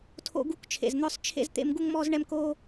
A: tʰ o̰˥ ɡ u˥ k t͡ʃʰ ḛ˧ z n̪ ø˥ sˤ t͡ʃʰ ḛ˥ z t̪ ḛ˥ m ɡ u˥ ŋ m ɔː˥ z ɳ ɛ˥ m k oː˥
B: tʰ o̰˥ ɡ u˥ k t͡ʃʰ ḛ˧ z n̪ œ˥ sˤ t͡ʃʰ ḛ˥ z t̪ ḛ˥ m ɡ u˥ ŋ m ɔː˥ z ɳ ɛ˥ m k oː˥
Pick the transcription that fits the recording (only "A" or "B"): B